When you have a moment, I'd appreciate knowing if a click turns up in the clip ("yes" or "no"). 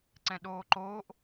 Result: yes